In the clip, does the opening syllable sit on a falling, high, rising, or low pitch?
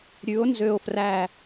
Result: rising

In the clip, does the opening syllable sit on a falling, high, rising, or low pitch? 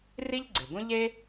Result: high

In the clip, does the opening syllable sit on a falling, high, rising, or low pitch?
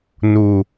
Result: low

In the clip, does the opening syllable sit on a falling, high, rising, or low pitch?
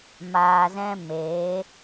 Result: low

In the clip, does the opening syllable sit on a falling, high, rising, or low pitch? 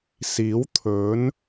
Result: rising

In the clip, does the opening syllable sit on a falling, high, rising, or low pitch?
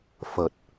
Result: low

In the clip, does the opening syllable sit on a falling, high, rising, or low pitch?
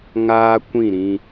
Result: high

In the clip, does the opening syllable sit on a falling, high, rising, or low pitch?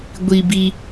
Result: low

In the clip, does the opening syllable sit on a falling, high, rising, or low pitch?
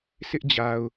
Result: high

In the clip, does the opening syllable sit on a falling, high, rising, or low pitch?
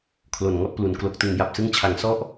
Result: low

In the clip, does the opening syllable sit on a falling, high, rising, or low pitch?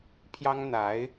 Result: high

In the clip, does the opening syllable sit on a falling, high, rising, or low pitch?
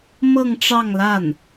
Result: falling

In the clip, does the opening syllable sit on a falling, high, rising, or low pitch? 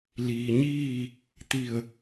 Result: low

